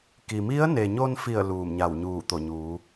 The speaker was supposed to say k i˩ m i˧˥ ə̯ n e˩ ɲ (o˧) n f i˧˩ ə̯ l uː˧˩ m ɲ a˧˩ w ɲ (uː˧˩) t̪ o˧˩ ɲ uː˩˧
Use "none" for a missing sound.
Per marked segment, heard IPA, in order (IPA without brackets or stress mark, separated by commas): o˧, uː˧˩